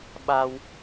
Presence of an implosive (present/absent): present